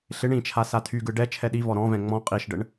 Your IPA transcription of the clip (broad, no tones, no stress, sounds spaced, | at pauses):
ɬ ɪ ɳ ĩ t͡ʃʰ a s a tʰ y ɡ ɯ ɖ ɛ t͡ʃʰ ɛ ɗ i v ɔ ɾ ɔ̃ v ɛ̃ ŋ͡m ɔ̃ qʼ i ʃ ɖ ə ɳ